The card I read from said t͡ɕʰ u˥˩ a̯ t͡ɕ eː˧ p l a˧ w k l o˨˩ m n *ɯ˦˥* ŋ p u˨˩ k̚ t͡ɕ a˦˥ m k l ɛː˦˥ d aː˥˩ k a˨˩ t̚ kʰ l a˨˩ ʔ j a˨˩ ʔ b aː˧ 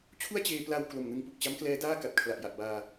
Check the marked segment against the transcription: incorrect: ɯ˧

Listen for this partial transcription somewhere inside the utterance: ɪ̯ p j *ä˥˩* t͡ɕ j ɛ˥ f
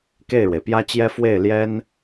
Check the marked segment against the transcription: incorrect: ä˥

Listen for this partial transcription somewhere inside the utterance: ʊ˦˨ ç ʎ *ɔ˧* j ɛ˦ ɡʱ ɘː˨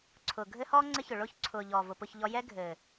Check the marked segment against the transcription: correct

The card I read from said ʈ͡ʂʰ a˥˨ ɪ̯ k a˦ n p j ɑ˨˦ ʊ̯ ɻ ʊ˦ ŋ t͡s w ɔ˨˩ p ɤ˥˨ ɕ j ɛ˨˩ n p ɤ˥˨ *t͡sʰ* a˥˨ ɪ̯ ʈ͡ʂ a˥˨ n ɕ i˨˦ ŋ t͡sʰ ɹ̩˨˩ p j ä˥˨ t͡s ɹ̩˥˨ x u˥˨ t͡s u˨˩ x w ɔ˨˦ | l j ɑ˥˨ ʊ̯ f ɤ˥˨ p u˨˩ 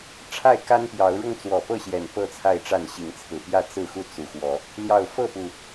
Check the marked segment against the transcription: correct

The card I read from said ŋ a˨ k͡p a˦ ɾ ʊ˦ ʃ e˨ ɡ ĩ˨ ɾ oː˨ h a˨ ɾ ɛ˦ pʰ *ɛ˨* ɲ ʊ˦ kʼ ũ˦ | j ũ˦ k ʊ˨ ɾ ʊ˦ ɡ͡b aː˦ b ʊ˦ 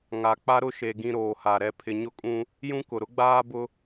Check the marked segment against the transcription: incorrect: ɪ˨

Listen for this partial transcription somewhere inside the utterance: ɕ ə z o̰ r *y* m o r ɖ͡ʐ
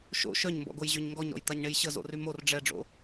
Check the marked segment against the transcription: correct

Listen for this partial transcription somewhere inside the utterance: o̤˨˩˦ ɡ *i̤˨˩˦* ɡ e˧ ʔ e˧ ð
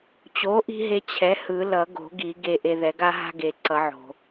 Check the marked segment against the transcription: incorrect: i˨˩˦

